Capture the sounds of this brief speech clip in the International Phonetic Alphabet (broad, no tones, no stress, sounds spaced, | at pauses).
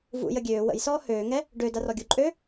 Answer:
v ṵ j ə ɡʲ øː w ə̰ j s ɔː h øː ŋ ɛ | ɖ ø d a r ɔ ɡʲ u ǃʼ øː